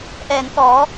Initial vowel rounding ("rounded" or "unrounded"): unrounded